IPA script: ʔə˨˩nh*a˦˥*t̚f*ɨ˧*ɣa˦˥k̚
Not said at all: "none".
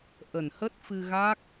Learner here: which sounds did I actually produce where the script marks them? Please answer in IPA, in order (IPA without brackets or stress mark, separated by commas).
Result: ə˦˥, ɨ˧